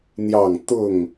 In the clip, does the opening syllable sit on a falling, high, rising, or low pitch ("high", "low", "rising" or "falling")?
falling